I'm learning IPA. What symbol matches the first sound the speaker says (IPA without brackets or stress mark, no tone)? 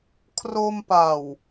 kʰ